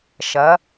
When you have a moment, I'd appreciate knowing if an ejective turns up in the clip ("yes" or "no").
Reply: no